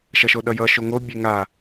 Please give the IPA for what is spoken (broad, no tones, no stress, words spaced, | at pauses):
ʃʌʃoɗʌjʌ ʃoŋo bʲeŋa